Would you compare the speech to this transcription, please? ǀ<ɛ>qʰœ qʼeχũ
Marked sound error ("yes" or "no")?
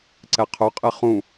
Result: no